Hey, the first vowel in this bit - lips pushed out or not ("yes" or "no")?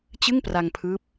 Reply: no